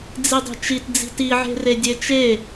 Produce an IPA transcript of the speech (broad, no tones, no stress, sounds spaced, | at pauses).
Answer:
d͡z i dˤ e̤ t͡ʃ i t d͡z i̤ t i ʕ e̤ r e dʲ e t͡ʃ e